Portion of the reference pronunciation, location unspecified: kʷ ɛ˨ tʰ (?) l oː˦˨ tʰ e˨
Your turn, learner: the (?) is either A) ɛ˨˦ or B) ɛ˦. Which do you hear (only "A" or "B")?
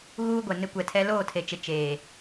B